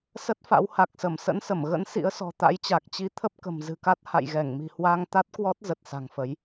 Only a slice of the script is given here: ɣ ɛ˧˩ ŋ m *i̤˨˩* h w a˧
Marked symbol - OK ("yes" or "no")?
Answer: yes